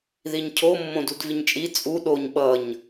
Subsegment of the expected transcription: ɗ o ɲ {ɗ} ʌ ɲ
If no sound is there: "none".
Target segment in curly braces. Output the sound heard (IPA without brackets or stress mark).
ɓ